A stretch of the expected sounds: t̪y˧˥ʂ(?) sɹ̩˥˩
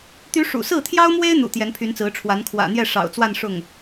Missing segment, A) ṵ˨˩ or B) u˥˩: A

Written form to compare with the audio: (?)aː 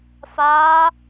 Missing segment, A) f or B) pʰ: A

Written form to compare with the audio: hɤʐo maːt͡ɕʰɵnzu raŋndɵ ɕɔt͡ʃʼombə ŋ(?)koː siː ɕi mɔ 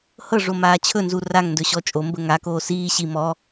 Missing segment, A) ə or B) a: B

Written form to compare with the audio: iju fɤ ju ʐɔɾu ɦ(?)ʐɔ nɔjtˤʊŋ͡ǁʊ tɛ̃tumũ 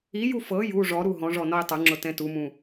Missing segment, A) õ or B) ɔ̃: B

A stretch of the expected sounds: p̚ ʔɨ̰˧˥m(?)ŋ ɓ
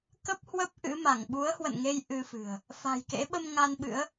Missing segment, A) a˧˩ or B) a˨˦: A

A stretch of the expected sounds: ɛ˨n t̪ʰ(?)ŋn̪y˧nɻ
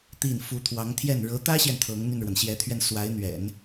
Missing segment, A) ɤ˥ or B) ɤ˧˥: B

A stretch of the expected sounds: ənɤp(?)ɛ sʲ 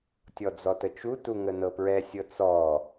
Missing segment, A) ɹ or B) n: A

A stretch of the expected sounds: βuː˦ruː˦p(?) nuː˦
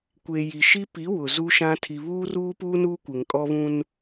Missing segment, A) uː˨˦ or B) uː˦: B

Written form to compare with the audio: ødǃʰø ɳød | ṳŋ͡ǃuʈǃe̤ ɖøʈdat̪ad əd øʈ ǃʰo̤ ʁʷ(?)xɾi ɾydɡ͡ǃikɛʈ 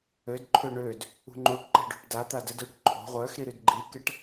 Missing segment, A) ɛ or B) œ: B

